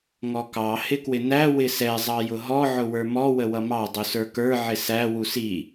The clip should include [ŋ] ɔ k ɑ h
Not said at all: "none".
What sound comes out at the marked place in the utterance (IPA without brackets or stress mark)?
ŋ